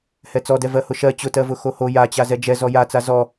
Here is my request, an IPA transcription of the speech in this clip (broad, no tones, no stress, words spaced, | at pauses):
hɛt͡sɔdɛ vɜhʊʃɜ t͡ɕʊtɜvʊ xoho jat͡ɕa zɛd͡ʒɛ zɔjat͡sa zɔ